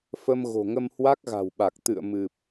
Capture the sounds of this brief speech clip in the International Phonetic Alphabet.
f ə˧ m ɣ o̤˨˩ ŋ ə˧ m h w a˦˥ k̚ ɣ a̤˨˩ w ɓ a˨˩ k̚ t̪ ɨ̰˧˨ ə̯ m ɨ˨˩ p̚

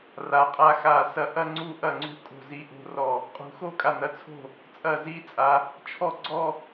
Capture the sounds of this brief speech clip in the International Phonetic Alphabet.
r a˨˦ qʼ a˥˧ x a˧˩ s ɐ˧˩ ʔ ɐ˥˧ ŋ͡ǀ u˥˧ ʔ ɐ˥˩ ŋ͡ǀ ṳ˥˩ kʼ o̤˥˩ z i˥˧ ʔ o̤˥˧ r ɔ˥˩ | qʼ ṳ˨˦ x o˥˧ kʼ a˧˩ n ɐ˧˩ t͡sʰ o̤˥˩ | t͡sʼ ɐ˥˩ z i˥˧ t͡sʼ a˨˦ | t͡ʃʰ ɔ˥˧ ɡ͡ǀ ɔ˥˧

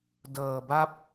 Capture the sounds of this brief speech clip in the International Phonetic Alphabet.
d ɤː˧ b a˥˩ p̚

